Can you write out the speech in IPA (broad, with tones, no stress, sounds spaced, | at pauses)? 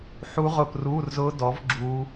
ħ u˦˥ ʁ ʊː˦˨ p r uː˧˥˧ r z ʊː˦˥ d ɔ˨˦ v ɡ͡ǁ uː˦˥